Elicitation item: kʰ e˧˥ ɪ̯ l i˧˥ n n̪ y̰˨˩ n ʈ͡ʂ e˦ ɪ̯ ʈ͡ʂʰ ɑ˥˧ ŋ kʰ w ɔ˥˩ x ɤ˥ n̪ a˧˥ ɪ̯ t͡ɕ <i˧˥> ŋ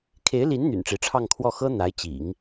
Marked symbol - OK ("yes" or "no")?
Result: no